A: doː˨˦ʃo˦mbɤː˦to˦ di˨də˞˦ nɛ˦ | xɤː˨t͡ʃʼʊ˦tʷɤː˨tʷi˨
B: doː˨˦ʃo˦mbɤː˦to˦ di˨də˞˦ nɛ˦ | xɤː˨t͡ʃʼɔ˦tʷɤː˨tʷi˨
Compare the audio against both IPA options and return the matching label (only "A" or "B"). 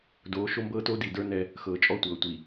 B